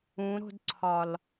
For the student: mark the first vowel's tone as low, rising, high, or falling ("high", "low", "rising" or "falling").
rising